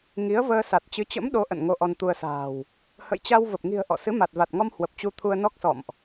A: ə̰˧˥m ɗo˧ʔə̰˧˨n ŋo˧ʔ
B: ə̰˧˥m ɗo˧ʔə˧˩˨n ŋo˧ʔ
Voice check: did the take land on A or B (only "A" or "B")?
A